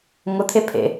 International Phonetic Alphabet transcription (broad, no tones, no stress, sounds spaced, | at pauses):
ŋ ʊ t̪ʰ e pʰ ḛ